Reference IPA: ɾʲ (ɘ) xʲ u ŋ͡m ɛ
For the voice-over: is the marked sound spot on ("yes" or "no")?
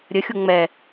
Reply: yes